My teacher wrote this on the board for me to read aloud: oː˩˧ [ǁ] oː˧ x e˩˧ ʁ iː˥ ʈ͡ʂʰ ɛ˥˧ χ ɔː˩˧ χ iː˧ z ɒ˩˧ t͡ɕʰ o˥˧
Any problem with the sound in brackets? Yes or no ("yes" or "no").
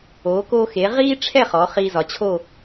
yes